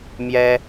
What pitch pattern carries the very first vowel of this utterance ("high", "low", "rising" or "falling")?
high